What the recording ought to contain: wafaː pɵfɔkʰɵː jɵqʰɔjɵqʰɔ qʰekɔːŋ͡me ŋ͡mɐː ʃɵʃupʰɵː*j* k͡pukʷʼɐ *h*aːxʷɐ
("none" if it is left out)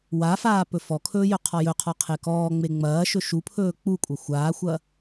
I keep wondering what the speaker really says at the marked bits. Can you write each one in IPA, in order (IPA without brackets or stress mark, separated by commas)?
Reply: none, xʷ